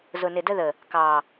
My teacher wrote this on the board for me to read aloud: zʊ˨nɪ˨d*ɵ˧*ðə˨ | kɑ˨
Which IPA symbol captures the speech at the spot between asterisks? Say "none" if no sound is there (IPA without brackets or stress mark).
ə˧